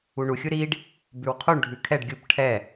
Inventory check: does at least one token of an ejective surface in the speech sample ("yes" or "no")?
no